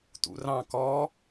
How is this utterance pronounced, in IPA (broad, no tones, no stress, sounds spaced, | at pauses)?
t ṵ r ɑ̃ k ɔ